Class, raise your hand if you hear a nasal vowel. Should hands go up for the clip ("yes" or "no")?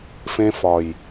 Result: yes